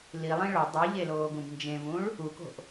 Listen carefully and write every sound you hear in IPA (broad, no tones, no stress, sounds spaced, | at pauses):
l i lˠ ĩ ɭ o dˤ i ʎ e l oː ɡ ũ b n d͡ʒ ẽ v ũ ɭ | u k o̤ ʔ